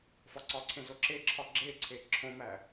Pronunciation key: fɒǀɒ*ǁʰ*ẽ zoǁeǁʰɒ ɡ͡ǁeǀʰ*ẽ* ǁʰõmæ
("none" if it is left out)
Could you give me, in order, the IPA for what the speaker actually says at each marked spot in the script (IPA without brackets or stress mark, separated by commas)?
ǀʰ, e